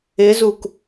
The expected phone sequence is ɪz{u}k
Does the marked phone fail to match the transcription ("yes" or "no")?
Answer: no